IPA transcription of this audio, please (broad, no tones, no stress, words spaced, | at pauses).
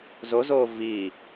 zozoː viː